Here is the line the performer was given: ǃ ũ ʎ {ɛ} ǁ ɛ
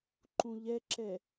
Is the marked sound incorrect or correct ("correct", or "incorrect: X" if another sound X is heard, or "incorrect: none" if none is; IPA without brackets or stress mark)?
correct